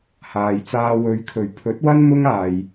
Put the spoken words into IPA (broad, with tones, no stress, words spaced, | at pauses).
haː˨jt͡saː˧ wɵ˨˧ɥkʰɵ˨˩ɥ pʰɵ˨˥t̚wɐ˥n mʊ˥ŋaː˨j